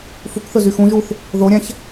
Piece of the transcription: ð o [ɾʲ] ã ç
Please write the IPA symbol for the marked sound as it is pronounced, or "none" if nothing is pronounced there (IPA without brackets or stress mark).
ɾʲ